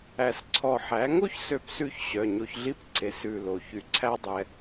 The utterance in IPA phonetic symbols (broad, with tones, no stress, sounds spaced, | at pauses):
æ˧˩ s ǀʰ ɔ˧˩ ħ æ˩˥ ŋ o˥ ç s ø˧˩ p s ʉ˧ ç ɕ œ˩˧˩ ɲ o˧ ç ɮ i˥ p ǀ e˩˥ s ʉ˧˩ l o˩ ç y˩ ǀʰ æ˧ dˤ ɛ˩